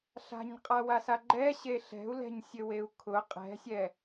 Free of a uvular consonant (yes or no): no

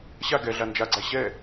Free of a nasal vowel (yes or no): yes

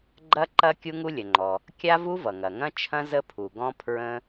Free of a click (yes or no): no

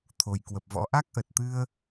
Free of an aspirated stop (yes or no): no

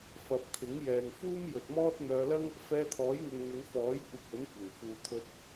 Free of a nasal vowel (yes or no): yes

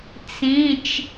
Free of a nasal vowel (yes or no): no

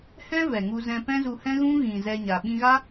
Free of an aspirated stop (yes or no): yes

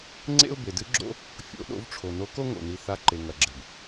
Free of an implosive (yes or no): no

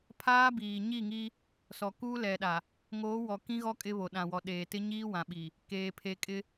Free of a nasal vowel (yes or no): no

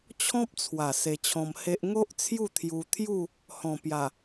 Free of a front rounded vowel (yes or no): yes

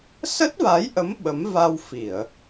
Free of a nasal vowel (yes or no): yes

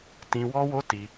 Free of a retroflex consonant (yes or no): yes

